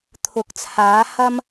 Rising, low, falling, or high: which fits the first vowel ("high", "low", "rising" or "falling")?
rising